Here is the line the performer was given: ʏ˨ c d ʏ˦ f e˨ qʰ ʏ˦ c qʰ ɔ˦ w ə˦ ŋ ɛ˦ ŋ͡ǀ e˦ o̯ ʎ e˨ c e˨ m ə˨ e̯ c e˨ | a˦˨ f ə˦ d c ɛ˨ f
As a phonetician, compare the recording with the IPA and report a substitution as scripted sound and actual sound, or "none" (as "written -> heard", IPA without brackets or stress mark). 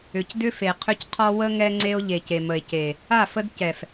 none